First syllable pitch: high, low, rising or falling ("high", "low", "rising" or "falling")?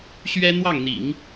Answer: high